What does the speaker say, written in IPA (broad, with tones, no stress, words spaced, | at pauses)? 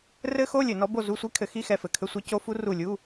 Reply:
rɘ˦˥xo˧˥˧lʲɘ˧˩˧ nɔ˨˥bo˦˨zu˧˥˧sʷi˦˥ kʰɘ˨˥xi˧˥˧xɛ˦˨fɘ˧˩˧ kʰɘ˧˥˧sʷɛ˦˥ co˦˥fu˦˥ ru˦˨lʲu˧˥˧